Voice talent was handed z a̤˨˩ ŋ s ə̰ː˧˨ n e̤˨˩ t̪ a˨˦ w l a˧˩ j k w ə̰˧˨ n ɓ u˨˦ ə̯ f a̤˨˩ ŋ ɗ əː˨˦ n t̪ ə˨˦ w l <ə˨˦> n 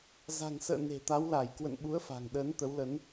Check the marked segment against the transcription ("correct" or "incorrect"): correct